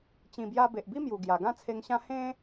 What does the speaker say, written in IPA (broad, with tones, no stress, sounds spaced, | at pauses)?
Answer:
t͡ɕ ĩ˨˩ b j a˧ b e˨ ʔ b i˦ m j u˨˩ ɡ j a˨˩ ɡ ã˥˧ t͡sʰ e˧ ŋ ɕ ã˦ h ẽ˦